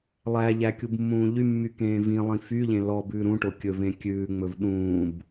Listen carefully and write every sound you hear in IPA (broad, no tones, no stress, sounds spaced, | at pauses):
lˠ æ ʎ æ kʲ u b mː ũː ʎ y mː y k ẽː v ĩ lˠ ĩ f y ʎ ẽ l ɔ b ʉː ɾ ũ ʈ o kʲ ɵ v ẽ kʲ ʉː ŋ͡m ɵ v ɗ ũː b